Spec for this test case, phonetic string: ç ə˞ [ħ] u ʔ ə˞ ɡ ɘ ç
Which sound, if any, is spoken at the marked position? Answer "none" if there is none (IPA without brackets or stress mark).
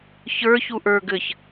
ç